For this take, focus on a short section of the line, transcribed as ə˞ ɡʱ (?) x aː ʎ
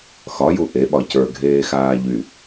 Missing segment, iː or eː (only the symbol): eː